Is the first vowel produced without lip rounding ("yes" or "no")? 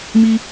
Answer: yes